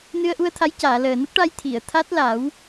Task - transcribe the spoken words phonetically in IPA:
n ɨ˧ ə̯ ʔ u˧ ə̯ t̪ʰ a˧˥ j c aː˨˩˨ l əː˨˩ n ə˦˥ k̚ ʈ a˧ j t̪ʰ i˨˩˨ ə̯ t̪ʰ a˦˥ t̚ l a˨˩˦ w

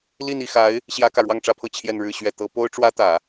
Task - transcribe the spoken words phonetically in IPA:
l i˥˧ n i˥˩ x a˧˥ ɪ̯ | ɕ j ä˥ k ä˨ ɻ w ɑ˥˧ ŋ ʈ͡ʂ ä˥˧ pʰ ɤ˥˧ t͡ɕʰ j ɛ˥˧ n ɻ ɻ̩˥˧ ɕ ɥ ɛ˥˩ t̪ ɤ˥ p o˥ ʊ̯ ʈ͡ʂ w ä˥ t̪ ä˨˩˦

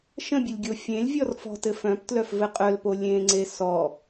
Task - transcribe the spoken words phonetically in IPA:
ʃ ə̃ bʲ ɘ lʲ ɡʲ o fʲ ẽ lʲ vʲ ɔ r f ɔ̤ t ɘ f œ̃ p t l œ f v ɘ qʼ œ l p o lʲ ẽ ŋ͡ǀ e s ɔ

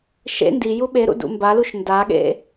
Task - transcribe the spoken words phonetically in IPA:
ʃ ḛ n d i j u ɓ e ɾ ṵ d ṵ m b a l u ʃ n d a ɠ ḛ

